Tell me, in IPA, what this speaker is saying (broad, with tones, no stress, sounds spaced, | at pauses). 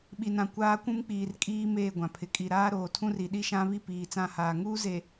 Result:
ɓ i˨ n ã˨ kʷ aː˦ kʷ ũ˦ m k͡p iː˨ r kʼ iː˦ m eː˦˨ ɡʷ ã˨ pʰ ɪ˨ kʼ i˨ ɾ aː˦ ɾ oː˨ tʰ ũ˦ r i˨ ɗ i˦ ʃ ã˦ β i˦ p iː˨ t͡s ã˦˨ h aː˨ ŋ uː˦ z e˨